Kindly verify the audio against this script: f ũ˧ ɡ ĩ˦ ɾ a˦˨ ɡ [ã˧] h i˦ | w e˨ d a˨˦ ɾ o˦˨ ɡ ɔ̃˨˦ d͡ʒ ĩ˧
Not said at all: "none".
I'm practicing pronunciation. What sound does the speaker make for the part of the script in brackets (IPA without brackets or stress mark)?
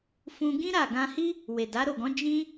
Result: ã˧